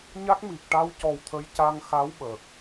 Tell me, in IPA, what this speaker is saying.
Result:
ɲ a˦˥ k̚ m i˨˩ k̚ ʈ a˧ w c ɔ˨˩ w t̪ʰ ə˧˥ j c a˧ ŋ x a˧˥ w ɓ əː˨˩ k̚

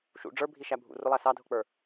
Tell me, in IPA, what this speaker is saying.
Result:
ʃ ṵ ɖ͡ʐ ə˞ bʱ i ʃ æ bʱ ṵ r ʊ lˠ æ s ɑ dʱ ʊ k͡p ə˞

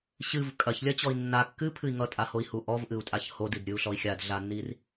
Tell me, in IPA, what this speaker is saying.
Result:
ɕ ɨ v kʼ ɐ ç lʲ ɐ t͡ɕ ɔ i̯ nː a kː ɨ pʰ ɨ i̯ ŋ ʌ tʼ a h o i̯ h u ʔ ɔ v ʔ ɨ u̯ tʼ a ç h o d i d ɾʲ ɨ u̯ ɬ ɔ i̯ xʲ a d ɮ a nː i r

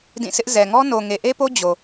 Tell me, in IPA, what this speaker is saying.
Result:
d ĩ˦˨ s ɪ˦ ʔ z ɛ˨ ŋ ɔ˦ n o˨ ŋ e˨ ʔ e˦ p o˦ d͡ʑ o˨

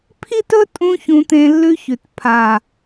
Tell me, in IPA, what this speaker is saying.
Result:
pʰ i˦ t ɵ˦ tʼ ũ˧ ç ũ˧ t̪ ẽ˧ lː ʉ˧ ç ʉ˨ t pʰ a˨

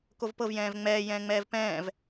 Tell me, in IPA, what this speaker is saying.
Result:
k o v p ɤ v j ɛ̃ː v ŋ͡m ɛː j ɛ̃ː ŋ͡m ɛː v p ɛ̃ː v

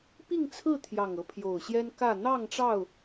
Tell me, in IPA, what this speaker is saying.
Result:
p i˥˨ ŋ t͡sʰ ɹ̩˥˨ t̪ʰ j ɑ˨˩ ŋ ɤ˦ pʰ j o˨˩ ʊ̯ ɕ j ɛ˦ n k ä˥˨ n̪ ɑ˥˨ ŋ ʈ͡ʂ ɑ˥˨ ʊ̯

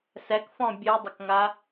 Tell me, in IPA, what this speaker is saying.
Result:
s ɛ k f ɔ̃ bʲ ɨ dˤ ə k ŋ a

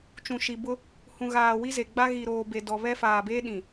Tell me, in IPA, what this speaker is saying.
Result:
t͡ʃ ũ˨ ʃ i˨ b ʊ˦ | h ũ˨ ɣ aː˨ w i˦ z e˨ ɡ͡b a˦ ɣ i˨ ɾ oː˨ b e˨ d ɔ˨ β ɛ˦ f aː˨ b e˦ ɗ ĩ˨

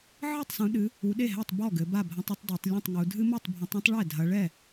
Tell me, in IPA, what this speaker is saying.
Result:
ʕ ɨ˥˩ tˤ s ũ˨˦ ɗ ɨ˨˦ | u˨˦ ɗ e˥˩ ɦ ɛ˥˩ tˤ b ɔ˥˩ ɡ ɘ˨˦ b a˥˩ bʱ ɐ̃˦ tˤ ɐ˦ tˤ d a˨˦ tˤ lʲ ũ˥˩ tˤ ŋ u˨˦ dʱ ɨ˦ m o˥˩ tˤ bʱ ɐ̃˨˦ tˤ ĩ˦ tˤ ɭ ɛ˥˩ dʱ ɐ˨˦ ɭ ɛ˥˩

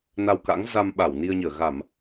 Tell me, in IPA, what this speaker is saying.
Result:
n a˧ w k a̰˧˥ ŋ z a˧ m ɓ a˧˩ w n i˧ ə̯ ɲ əː˧˩ ɣ a˧˩˨ m

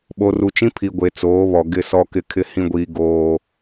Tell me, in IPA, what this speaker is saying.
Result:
ɓ o˨ r u˨ t͡ʃ ĩ˦ pʰ i˨ ɡʷ e˨ t͡s oː˨˦ β ɔ˨ ɡ ɪ˦˨ s ɔ˦ k ɪ˦ kʰ ɪ˦ h ĩ˦ ɡʷ iː˦ ɡ oː˦

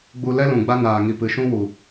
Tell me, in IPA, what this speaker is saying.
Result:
ɡ͡b u˧ l ɛ˦ l ũ˨ ɡ͡b a˦ n aː˨ ŋ i˨ p ɨ˨ ʃ ũ˦ w u˨

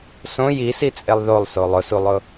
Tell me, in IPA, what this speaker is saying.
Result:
s õ j i s i t͡sʼ e lˠ ð o lˠ s o lˠ ʊ s u lˠ ʊ

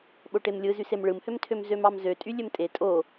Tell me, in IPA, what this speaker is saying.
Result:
ɓ o ʈ e m lʲ ɯ z y s e m ɭ ɯ m h ø m tʰ ø m z ø m ɑ m z ø tʼ y lʲ ø m tʼ e tʼ o

